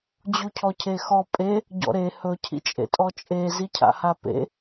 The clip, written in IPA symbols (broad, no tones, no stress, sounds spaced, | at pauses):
d͡ʑ u cʰ ɔ cʰ e x ɔ pʼ e | ɟ ɔ̰ ɾ e h ɵ cʰ ḭ t͡ʃʼ ḛ tʼ ɔ t͡ʃʼ e z i cʰ a̰ h a p ḛ